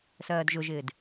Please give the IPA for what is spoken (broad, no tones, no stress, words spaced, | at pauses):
sɜːdʒʊʒɪːd